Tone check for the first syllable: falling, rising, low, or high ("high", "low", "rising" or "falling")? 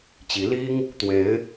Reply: rising